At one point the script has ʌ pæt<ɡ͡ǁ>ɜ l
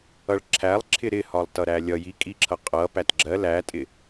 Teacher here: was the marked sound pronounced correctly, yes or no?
yes